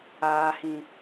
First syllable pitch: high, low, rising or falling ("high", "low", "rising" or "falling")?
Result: low